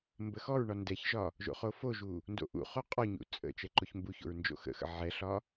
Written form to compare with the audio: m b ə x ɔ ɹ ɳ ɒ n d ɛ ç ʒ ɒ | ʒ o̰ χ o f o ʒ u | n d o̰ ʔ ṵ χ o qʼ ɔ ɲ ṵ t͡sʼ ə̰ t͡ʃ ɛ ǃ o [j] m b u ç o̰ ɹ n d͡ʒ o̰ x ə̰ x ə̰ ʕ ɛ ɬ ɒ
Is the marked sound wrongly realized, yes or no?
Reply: yes